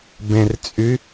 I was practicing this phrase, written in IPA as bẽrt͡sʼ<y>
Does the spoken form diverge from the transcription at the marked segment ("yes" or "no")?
no